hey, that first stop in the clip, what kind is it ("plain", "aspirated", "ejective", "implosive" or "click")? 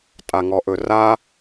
ejective